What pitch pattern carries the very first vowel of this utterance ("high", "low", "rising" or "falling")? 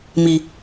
low